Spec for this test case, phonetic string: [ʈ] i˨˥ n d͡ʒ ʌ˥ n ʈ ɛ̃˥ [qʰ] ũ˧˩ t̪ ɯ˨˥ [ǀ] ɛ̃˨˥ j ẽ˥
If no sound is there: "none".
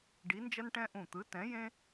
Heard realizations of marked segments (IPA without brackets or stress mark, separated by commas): ɖ, ʔ, t